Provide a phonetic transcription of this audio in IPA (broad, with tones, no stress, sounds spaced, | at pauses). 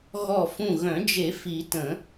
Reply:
ɣ ɔ˧˩ f ũ˧˩ ɣ œ̃˨˩˦ d͡ʒ e˨˩˦ f i˨˩˦ t ə̃˨˩˦